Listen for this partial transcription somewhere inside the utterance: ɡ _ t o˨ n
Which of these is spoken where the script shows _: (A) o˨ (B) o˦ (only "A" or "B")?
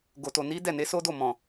A